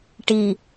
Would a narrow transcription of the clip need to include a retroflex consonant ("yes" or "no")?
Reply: yes